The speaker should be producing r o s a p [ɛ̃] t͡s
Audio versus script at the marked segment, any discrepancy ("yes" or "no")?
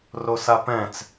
no